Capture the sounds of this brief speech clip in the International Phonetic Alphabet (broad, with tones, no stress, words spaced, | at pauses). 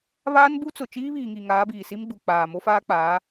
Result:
βaː˦nbu˦t͡sʊ˨ t͡ʃiː˦βiː˨ŋi˨ ŋaː˨˦biː˨si˦mɡ͡bu˨ k͡paː˨ mo˦faː˦ k͡paː˨˦